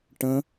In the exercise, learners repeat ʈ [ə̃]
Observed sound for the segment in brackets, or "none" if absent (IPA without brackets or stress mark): ə̃